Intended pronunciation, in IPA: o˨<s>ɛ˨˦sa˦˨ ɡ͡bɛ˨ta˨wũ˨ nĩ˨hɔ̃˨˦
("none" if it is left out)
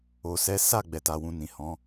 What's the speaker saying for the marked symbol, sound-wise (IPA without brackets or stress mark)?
s